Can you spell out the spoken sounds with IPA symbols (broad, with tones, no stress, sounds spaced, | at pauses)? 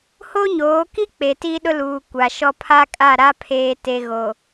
h o˦ ɲ oː˨˦ k i˦ k͡p e˨ t i˦ ɗ ʊ˦ l uː˨ kʷ a˨ ʃ ɔ˦ pʰ a˦ kʼ a˦˨ ɾ a˦ pʰ eː˨ t e˨ ɣ o˨